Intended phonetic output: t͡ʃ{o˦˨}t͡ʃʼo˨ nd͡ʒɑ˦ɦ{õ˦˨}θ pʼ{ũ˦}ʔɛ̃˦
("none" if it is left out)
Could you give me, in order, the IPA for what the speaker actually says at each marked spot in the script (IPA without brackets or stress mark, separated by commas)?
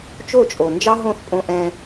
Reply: o˦˨, õ˦˨, õ˦